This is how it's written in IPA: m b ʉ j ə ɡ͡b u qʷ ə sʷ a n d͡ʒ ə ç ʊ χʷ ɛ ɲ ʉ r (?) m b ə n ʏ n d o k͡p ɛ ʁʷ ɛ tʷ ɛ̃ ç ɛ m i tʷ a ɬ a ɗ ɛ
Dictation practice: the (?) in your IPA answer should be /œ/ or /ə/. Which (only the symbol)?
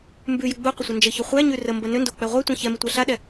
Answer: ə